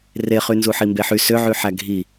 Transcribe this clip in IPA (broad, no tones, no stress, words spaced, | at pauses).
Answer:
reχy nzuħimbeħy søʕyħæ ɡʱi